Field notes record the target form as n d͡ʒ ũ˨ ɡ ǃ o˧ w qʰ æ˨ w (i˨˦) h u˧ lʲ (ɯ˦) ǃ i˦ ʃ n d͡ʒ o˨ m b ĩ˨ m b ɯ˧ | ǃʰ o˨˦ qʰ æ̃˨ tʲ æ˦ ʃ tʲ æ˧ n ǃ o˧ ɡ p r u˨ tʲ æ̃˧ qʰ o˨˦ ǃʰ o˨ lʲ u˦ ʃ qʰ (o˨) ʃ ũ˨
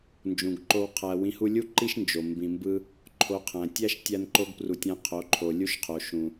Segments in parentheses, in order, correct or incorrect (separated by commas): incorrect, incorrect, correct